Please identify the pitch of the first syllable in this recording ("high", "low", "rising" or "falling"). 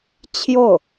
falling